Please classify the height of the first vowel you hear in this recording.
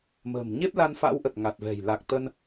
mid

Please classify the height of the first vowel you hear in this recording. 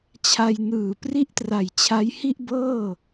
low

